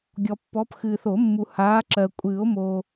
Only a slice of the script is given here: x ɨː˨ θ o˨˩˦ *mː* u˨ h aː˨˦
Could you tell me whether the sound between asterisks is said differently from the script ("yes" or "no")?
no